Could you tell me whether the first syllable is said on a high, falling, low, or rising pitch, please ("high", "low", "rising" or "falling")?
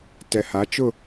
low